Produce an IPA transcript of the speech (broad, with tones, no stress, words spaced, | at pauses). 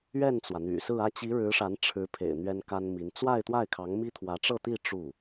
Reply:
ɥɛ˥˩nt͡swä˩n̪y̰˨˩sɹ̩˥˧ ä˥˩t͡ɕi˧˥ ɻɻ̩˧˥ʂa˧˥nʈ͡ʂʰɻ̩˧˥pʰḛ˨˩ɪ̯ n̪ɥɛ˥nka˥nmi˧˥n t͡swa˥˧ɪ̯t̪wa˥˩ɪ̯kʰɑ˧˥ŋmi˥ t̪ʰwä˧˥ʈ͡ʂɤ˥˧t̪i˥˧ ʈ͡ʂu˥˩